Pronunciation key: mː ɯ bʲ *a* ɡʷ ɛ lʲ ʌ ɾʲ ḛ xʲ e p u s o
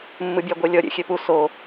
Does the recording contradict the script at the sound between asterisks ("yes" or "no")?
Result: no